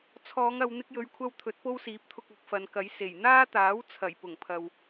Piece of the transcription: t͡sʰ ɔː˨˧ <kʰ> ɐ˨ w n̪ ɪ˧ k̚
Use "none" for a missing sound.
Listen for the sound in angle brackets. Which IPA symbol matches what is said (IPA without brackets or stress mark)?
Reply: ŋ